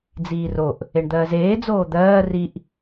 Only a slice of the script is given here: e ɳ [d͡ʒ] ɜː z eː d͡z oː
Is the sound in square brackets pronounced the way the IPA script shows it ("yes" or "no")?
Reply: no